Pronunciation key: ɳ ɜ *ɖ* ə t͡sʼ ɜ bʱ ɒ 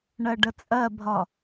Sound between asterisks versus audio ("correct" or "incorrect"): correct